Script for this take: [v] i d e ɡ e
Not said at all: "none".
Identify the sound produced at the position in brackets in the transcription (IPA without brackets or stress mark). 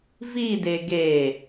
v